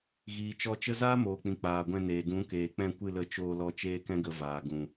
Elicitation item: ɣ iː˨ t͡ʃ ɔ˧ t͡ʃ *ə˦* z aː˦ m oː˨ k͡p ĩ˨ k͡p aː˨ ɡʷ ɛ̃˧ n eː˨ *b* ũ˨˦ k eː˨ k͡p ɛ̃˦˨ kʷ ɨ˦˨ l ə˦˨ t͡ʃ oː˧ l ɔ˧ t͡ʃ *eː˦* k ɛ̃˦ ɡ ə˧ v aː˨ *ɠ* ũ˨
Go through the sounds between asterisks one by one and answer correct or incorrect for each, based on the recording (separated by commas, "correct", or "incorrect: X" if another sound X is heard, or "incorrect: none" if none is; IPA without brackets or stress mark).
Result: correct, incorrect: d, correct, incorrect: ɡ